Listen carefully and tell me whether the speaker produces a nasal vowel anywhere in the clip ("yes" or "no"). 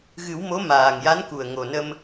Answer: no